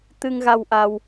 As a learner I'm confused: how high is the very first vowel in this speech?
high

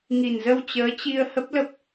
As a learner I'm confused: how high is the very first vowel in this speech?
high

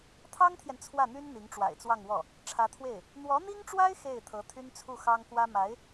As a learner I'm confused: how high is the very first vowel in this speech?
low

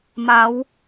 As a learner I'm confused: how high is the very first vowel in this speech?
low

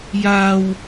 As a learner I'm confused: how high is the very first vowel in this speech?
low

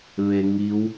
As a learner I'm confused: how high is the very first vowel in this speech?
mid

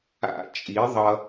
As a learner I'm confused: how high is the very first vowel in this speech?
low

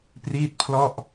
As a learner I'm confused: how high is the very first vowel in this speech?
high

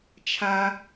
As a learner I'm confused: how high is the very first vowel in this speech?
low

